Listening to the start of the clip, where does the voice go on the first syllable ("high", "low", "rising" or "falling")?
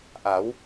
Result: rising